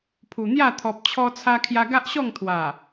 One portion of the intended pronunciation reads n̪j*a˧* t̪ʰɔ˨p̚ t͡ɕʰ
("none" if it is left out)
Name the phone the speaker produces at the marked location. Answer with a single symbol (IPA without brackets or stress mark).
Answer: a˥˧